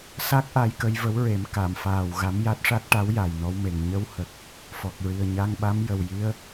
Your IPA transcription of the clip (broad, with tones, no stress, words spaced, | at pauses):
sa˦˥k̚ʔa˧j kə˧jvə˧˥wɹe˨˩˦m ka˨˩˨mfaː˨˩w ɣa˧˥mja˦˥t̚ʂa˦˥t̚ ʈa˧˥wja˨˩jnɔ˧wme˨˩ŋ ɲə˧whə˨˩k̚ | fɔ˨˩k̚ɹi˨˩ə̯ ɲa˧ŋɓa˧˥m jə˨˩wji˧˥ə̯